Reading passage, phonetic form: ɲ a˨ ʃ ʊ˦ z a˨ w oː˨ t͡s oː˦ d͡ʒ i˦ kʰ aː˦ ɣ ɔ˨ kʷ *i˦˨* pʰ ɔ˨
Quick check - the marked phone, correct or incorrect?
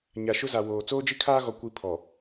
incorrect